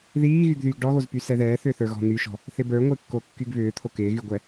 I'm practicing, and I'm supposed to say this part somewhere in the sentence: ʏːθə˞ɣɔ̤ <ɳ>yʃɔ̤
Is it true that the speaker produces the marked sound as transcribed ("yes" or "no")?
no